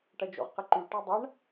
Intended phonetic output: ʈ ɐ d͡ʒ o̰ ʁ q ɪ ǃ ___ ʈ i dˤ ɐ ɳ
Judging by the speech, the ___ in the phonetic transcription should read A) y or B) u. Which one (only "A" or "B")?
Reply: A